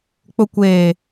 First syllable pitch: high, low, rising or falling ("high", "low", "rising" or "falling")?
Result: low